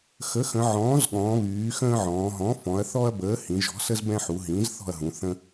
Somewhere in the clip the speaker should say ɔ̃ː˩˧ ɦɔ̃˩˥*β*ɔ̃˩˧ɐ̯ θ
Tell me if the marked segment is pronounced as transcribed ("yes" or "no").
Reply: no